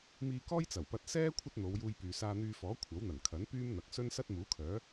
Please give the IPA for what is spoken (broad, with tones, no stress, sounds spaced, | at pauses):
m iː˧ k ɔː˥ j t͡s ɐ˨˩ w p ɐ˧ t̚ s ɛː˥ kʷʰ ɐ˥ t̚ n̪ o˨˧ w j uː˧ j p yː˨ s aː˧ n̪ yː˧ f ɔː˨˥ kʷʰ ɐ˨˥ w n̪ ɐ˨˩ n kʰ ɐ˨˥ n p yː˥ m n̪ ɐ˨ k̚ s ɵ˥ n s ɐ˥ t̚ m uː˨˥ kʰ œː˨˥